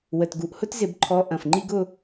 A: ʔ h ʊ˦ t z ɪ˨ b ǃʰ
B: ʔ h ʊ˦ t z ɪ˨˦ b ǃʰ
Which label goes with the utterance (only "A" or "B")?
B